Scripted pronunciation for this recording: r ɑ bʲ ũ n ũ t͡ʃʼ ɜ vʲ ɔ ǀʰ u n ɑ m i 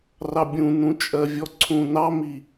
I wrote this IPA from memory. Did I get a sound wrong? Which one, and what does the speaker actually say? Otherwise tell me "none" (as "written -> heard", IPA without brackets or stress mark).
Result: u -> ũ